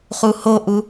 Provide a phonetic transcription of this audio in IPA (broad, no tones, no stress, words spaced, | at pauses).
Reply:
χuhoʔu